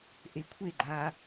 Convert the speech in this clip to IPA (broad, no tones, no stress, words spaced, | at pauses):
ʔekʷʰeɡ͡ǃaː